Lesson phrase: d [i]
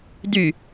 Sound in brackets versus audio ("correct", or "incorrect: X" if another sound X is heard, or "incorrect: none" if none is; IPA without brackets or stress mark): incorrect: y